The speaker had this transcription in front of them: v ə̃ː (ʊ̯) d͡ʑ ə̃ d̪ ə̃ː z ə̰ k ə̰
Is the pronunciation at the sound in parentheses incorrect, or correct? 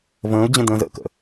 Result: correct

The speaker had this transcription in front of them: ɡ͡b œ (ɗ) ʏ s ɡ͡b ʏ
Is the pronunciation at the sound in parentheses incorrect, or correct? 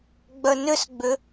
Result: incorrect: n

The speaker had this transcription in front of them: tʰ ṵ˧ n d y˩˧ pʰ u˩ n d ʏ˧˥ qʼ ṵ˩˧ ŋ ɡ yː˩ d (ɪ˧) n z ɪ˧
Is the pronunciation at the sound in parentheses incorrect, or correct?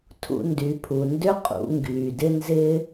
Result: correct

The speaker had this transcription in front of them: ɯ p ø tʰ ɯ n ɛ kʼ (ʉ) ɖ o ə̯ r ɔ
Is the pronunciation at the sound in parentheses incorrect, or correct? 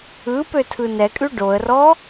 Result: correct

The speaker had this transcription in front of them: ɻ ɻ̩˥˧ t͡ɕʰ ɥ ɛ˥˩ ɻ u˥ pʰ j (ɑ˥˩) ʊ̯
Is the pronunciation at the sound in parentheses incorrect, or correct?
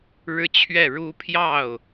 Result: correct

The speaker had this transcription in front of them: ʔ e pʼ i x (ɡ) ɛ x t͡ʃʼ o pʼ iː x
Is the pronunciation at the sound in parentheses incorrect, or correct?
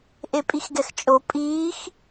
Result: correct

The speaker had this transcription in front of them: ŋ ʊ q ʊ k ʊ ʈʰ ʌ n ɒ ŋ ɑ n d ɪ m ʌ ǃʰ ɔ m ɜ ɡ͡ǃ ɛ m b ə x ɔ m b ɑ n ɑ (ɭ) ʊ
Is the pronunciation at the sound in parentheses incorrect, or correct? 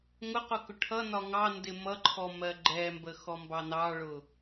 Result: correct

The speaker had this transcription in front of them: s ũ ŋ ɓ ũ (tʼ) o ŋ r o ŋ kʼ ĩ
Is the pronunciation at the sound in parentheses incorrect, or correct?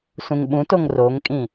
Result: incorrect: t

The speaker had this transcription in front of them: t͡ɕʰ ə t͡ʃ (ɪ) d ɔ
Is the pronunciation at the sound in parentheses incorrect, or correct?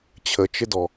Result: correct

